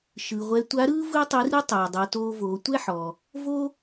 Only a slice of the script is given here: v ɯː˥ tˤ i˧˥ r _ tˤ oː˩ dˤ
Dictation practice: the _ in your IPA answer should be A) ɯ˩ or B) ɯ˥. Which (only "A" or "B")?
B